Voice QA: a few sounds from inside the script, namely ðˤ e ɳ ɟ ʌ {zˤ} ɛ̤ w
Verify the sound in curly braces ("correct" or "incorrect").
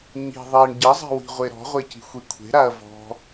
correct